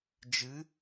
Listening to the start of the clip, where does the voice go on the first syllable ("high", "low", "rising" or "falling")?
rising